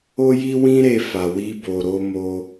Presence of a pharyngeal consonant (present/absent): absent